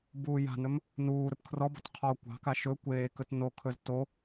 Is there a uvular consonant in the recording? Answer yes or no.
yes